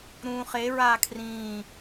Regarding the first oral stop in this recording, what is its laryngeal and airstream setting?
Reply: aspirated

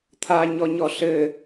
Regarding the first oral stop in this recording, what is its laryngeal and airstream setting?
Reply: aspirated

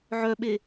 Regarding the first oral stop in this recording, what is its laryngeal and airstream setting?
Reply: implosive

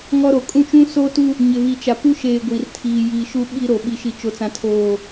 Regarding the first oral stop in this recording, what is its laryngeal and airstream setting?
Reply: ejective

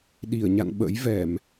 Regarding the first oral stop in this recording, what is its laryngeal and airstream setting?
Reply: implosive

